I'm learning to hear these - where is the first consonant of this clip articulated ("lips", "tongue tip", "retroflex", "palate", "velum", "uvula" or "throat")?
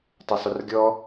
tongue tip